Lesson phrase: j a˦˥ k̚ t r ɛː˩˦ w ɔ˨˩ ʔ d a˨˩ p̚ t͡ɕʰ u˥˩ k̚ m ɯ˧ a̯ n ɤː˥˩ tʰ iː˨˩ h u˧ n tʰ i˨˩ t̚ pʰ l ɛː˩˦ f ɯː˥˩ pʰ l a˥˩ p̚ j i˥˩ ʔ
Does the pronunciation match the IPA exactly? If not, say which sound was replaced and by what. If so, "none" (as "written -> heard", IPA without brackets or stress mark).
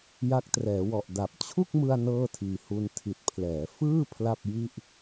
none